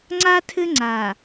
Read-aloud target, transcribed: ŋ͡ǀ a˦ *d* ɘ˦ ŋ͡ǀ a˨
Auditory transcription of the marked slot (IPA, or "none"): tʰ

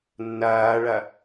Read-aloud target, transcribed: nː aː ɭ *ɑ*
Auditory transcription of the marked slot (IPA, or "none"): a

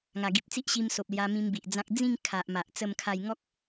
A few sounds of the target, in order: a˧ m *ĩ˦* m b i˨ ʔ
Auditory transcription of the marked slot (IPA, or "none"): ĩ˧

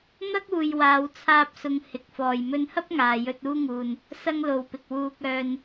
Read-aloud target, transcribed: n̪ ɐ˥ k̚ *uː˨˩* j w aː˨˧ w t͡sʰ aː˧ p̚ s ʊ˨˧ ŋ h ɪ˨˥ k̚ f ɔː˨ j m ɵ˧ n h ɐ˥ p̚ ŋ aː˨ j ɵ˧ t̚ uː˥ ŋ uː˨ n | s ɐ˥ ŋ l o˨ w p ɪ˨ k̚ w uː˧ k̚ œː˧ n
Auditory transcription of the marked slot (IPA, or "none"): uː˨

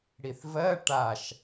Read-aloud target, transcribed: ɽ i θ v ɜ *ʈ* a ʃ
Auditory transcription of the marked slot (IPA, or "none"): ʈ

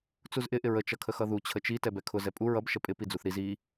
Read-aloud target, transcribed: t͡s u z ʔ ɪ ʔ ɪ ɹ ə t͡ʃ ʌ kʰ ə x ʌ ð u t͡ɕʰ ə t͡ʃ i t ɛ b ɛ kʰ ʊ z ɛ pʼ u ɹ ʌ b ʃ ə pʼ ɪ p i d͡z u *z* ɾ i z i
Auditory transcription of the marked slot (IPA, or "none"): θ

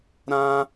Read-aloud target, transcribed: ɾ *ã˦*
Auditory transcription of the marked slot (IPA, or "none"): ã˦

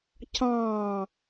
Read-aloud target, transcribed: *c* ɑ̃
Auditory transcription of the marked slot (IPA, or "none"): c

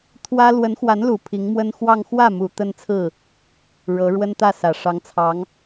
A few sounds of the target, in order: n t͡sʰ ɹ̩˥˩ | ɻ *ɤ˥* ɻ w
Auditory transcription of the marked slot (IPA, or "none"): ɤ˧˥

